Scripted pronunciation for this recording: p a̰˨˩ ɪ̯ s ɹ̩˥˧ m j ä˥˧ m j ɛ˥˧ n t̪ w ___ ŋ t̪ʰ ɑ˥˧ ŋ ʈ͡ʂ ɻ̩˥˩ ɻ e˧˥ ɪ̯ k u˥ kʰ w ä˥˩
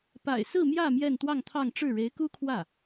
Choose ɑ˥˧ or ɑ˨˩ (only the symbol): ɑ˥˧